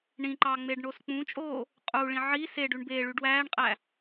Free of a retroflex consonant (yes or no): no